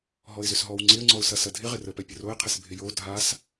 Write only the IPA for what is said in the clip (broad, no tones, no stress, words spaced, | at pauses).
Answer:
ɦɔɪ̯zʏsɦɔw ŋ͡ǀɪə̯ŋ͡ǀɔʊ̯sɐ sɐdʱɪ ʁɪrəpɛ pʲəroɪ̯qʰɪs bʱɪjo dʱas